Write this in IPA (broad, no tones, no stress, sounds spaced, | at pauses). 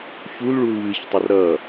ç u l ɭ u l v ɨ ç tˤ ʌ r ɾ ʌ